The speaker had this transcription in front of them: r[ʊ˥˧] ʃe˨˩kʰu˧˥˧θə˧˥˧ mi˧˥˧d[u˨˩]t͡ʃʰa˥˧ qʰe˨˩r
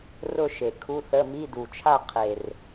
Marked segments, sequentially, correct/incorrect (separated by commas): correct, correct